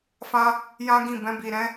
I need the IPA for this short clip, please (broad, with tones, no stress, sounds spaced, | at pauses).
f ã˧ | j ã˦ ɡ ĩ˦˨ b ɛ̃˧ b i˨ ɾ ɛ̃˨˦